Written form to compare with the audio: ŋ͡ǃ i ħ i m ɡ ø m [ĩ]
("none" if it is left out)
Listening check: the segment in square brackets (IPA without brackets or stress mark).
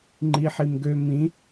ĩ